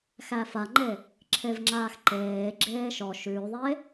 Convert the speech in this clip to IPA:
xæfaŋ͡ǃe | ǁʰevŋ͡ǁaːxǃeːɡ͡ǁeː ʃɔ ʃʉːðˤe

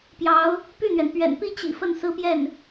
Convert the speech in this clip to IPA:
pjɑ˧˥ʊ̯ | py˥˩n̪ɥɛ˩n pɥɛ̰˨˩npi˥˩t͡ɕḭ˨˩ fə˥˩nsɹ̩˥pjɛ˥˩n

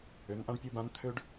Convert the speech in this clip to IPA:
ø˨˦nʔã˦ɖpʲu˦˨bã˦n t̪ʰø˦ɖ

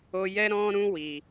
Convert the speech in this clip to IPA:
o˧ jɛ˦ɾɔ̃˦ɾũ˦ wi˧

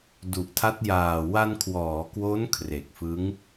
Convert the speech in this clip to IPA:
du˨˩ʔtʰa˦˥t̚jaː˨˩ wa˧nkʰwɔː˩˦kwo˦˥n kʰre˨˩k̚fɯ˦˥ŋ

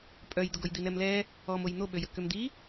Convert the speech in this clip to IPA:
pʼœjd̪ʊɡoj d̪inɛmlɛ | ɔmoj n̪oɓøjə kømd̪i

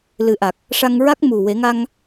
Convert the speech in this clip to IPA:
lɨ˨˩˦ʔa˨˩k̚ | ʂa˧ŋ ɹa˦˥k̚mu˨˩we˨˩˦ŋa˧ŋ

